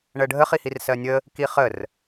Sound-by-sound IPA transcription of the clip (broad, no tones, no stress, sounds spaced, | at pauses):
ɳ ɜ ɖʱ ə χ i h i r s ɜ nʲ ə | k i χ ə r